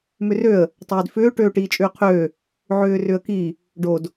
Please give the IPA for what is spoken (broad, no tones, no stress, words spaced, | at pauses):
mʏrøə̯ | tˤøːdfʏː ʈøːʈiːt͡ʃʼʏːqʰøː | ʕʏːrʏə̯ki | ɖod